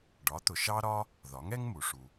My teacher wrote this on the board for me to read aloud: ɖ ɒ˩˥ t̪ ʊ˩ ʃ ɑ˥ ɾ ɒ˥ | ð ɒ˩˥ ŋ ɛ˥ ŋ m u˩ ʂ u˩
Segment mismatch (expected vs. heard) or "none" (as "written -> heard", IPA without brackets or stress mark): none